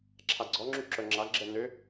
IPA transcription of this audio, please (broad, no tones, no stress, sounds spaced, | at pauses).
ǁʰ a ɡ͡ǀ ɔ ŋ͡ǁ y ǁ œ ŋ͡ǁ a ɡ͡ǁ ɛ n ø